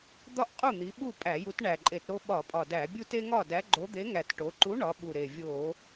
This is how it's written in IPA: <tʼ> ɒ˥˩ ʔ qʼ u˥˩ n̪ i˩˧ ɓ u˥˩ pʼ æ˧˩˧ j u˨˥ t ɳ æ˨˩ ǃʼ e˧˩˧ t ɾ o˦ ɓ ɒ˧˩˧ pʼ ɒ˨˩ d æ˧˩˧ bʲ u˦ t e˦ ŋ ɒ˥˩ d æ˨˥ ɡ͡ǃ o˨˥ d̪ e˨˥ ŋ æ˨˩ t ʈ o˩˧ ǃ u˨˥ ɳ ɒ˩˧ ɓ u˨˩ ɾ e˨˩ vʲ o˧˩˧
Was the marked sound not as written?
yes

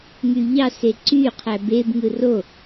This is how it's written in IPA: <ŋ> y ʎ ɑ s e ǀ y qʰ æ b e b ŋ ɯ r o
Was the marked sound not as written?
no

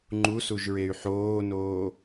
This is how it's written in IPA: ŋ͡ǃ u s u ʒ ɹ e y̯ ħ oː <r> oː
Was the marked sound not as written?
yes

